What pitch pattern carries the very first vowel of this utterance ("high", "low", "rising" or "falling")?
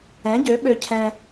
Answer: rising